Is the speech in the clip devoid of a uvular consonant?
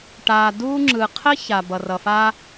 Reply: no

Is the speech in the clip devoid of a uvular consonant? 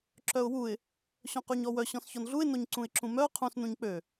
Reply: no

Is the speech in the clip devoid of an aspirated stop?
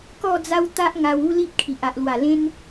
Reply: no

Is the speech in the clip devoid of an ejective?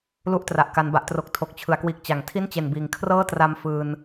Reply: yes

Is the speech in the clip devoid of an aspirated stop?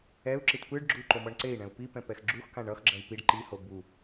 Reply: yes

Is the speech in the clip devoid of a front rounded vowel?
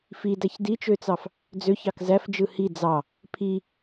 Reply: no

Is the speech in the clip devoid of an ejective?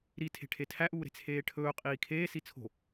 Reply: no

